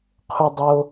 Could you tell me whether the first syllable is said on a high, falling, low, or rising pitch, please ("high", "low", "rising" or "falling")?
high